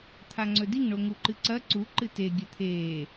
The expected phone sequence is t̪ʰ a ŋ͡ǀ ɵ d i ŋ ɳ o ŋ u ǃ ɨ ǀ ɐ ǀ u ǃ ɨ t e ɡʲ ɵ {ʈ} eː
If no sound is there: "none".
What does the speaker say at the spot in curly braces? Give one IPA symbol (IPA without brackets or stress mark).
t̪ʰ